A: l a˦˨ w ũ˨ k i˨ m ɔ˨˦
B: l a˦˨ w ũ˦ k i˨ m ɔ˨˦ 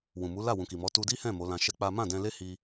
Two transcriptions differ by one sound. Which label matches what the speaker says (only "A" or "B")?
A